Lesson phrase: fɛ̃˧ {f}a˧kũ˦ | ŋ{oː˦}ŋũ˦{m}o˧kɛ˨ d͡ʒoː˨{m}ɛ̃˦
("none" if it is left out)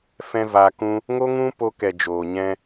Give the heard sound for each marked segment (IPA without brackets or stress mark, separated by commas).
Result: v, o˦, p, ɲ